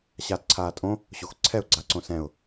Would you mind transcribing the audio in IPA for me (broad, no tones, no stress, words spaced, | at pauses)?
ɕaːtǀʰaːtʼõ | ɕoxǀʰɛʊ̯ ɡ͡ǀaǀõsɛ̃ʊ̯